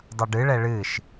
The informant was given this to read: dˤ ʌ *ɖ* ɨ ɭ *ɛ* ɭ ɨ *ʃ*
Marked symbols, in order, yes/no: yes, yes, yes

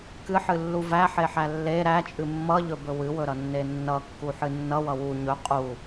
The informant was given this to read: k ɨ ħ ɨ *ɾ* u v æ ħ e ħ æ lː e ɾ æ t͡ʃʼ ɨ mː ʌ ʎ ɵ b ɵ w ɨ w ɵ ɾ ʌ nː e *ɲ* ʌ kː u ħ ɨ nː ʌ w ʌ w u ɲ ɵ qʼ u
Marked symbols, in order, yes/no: no, no

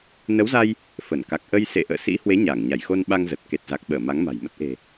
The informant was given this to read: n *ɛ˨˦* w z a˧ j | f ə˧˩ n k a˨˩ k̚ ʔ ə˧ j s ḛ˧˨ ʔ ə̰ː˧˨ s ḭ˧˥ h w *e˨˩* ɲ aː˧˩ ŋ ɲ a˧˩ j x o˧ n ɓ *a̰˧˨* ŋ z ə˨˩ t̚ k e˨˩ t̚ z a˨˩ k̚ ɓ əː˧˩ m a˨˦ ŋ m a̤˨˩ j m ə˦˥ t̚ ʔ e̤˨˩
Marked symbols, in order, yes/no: no, no, no

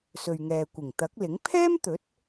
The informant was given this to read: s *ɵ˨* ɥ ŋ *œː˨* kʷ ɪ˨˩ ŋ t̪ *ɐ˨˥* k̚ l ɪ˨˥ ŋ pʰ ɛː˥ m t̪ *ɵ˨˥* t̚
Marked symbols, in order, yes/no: yes, no, yes, yes

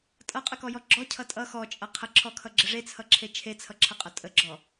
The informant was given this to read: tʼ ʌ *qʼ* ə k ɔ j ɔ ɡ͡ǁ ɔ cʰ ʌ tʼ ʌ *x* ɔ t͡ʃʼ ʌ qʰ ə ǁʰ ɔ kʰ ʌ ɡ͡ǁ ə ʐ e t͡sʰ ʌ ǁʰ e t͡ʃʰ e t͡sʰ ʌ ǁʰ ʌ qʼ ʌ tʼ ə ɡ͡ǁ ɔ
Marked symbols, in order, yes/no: yes, yes

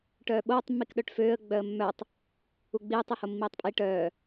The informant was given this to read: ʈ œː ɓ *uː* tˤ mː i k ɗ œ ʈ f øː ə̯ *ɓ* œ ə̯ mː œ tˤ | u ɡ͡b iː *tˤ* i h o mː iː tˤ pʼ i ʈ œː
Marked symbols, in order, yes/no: no, no, yes

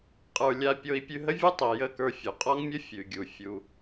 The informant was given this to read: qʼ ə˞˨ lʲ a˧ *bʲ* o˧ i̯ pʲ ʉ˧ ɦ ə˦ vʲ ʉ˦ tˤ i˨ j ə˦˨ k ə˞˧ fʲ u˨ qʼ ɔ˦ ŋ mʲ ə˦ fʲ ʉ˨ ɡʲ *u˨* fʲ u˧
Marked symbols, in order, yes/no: no, yes

